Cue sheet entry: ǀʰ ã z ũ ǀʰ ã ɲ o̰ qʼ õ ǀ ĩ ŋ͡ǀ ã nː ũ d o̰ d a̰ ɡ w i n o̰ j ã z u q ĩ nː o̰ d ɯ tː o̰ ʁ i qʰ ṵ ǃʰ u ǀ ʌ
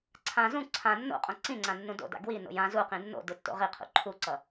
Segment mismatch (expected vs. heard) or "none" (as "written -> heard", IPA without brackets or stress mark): ɲ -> nː